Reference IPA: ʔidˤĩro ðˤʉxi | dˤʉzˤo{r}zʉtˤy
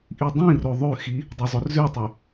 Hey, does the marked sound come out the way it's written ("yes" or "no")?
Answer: yes